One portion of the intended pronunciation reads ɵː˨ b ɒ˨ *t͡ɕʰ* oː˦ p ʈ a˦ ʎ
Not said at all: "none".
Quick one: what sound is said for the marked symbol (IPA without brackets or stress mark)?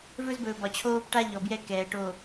t͡ɕʰ